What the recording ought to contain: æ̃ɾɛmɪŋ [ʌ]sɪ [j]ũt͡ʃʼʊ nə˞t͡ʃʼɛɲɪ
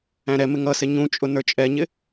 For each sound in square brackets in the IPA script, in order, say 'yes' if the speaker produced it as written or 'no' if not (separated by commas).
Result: yes, no